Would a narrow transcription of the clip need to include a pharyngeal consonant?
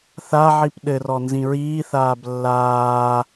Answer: yes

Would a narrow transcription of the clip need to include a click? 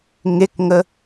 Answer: no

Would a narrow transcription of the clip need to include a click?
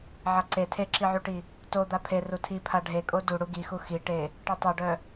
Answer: yes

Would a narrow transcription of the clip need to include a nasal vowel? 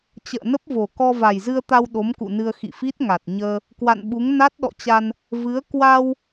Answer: no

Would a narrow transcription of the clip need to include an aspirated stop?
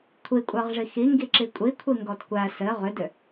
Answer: yes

